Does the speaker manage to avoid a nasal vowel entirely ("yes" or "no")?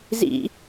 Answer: yes